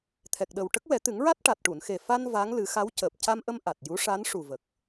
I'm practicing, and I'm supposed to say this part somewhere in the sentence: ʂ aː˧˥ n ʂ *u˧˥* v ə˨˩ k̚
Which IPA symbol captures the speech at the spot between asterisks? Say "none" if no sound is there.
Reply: u˨˩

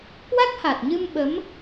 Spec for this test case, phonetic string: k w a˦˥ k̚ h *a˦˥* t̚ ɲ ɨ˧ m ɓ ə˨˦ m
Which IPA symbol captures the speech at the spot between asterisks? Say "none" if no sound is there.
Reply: a˨˩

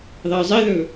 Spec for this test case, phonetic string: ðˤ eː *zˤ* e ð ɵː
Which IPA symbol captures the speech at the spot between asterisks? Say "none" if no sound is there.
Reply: zˤ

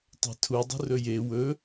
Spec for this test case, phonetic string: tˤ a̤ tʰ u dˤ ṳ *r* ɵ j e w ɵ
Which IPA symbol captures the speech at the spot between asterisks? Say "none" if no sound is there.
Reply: r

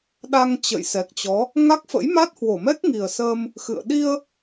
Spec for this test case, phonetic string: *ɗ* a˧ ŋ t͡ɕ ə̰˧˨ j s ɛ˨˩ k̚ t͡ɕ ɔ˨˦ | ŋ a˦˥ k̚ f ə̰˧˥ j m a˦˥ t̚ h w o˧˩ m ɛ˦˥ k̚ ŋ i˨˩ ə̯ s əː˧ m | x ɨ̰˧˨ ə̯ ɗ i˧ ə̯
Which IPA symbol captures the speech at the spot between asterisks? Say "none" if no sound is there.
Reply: ɗ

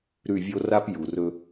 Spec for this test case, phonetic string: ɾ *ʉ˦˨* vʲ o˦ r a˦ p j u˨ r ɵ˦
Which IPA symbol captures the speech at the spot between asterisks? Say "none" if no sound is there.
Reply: ʉ˦˨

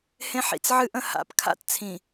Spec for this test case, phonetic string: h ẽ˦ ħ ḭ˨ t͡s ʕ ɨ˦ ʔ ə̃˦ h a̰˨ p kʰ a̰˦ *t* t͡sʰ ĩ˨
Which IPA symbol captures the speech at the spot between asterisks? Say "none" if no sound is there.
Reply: t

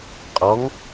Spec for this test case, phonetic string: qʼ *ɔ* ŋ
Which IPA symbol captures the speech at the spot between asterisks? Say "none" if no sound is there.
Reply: ɔ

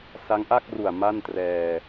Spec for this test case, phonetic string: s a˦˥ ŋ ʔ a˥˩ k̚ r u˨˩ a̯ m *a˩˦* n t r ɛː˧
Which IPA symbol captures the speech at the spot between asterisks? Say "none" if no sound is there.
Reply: a˥˩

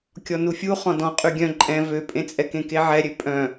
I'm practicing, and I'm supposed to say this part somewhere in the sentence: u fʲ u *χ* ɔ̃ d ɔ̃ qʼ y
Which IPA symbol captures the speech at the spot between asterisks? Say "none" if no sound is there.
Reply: χ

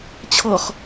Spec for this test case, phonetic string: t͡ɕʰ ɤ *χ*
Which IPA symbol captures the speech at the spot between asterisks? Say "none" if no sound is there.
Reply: χ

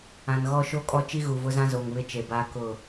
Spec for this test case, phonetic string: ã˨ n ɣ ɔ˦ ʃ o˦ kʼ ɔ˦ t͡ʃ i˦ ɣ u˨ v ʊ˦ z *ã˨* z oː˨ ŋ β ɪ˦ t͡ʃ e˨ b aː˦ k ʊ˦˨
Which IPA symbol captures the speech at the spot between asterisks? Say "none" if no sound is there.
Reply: ã˦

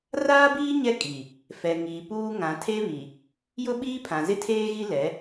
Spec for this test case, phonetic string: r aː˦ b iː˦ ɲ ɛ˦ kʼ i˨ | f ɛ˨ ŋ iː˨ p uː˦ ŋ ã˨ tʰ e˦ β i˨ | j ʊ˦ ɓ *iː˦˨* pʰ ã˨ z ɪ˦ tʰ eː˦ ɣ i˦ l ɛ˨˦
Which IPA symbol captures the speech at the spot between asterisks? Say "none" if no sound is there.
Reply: iː˦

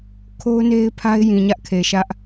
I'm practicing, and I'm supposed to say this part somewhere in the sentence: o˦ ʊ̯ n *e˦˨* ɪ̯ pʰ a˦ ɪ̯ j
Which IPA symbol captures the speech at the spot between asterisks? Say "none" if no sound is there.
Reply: e˦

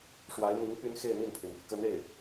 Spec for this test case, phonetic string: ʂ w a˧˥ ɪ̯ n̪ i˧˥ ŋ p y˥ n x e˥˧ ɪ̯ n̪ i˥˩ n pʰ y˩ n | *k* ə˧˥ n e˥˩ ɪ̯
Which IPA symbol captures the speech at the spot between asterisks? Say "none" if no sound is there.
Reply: k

